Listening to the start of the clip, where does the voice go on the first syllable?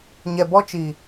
low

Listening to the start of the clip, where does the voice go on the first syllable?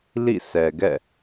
falling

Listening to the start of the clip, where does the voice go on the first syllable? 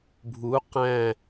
rising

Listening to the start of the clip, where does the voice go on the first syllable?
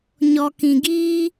low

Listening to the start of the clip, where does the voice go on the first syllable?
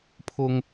low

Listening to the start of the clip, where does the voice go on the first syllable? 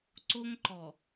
high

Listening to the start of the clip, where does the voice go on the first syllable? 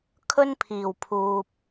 high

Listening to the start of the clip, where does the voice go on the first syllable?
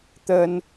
high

